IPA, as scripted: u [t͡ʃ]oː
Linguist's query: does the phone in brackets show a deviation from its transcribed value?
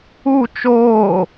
no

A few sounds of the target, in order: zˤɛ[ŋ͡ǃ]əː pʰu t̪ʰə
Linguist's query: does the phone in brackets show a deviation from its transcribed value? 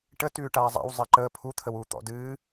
yes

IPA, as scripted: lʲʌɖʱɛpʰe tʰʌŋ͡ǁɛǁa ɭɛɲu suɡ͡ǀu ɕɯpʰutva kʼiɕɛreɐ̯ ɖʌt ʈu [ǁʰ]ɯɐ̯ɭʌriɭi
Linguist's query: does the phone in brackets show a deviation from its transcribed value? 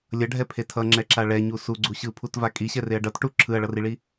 no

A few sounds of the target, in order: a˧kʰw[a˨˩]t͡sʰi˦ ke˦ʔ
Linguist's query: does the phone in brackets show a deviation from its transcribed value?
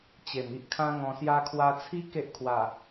yes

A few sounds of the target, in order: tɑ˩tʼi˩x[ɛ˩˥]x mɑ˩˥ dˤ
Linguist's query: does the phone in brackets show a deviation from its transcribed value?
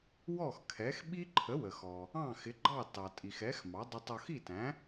no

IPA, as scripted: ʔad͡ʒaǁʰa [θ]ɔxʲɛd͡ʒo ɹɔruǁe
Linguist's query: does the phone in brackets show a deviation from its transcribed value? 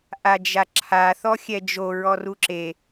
no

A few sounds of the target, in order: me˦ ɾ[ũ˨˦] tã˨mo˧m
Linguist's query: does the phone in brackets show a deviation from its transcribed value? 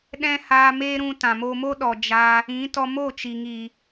yes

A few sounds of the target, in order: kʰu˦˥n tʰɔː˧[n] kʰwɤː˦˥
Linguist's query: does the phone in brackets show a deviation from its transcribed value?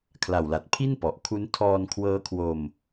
no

